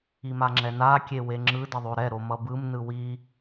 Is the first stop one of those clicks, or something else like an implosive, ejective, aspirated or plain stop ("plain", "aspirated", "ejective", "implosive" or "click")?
click